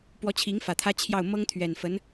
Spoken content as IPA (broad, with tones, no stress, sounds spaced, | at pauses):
p w ɔ˧˥ t͡ɕʰ i˧˥ ŋ f ä˨˩ t̪ʰ ä˥ t͡ɕʰ j ɑ˥˩ ʊ̯ m ɤ˥ ŋ t̪ʰ ɥ ɛ˨˩ n f ə˧˥ n